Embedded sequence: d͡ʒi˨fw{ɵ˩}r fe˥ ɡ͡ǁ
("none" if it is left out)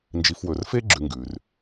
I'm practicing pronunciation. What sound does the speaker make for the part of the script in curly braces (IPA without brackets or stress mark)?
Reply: ɵ˩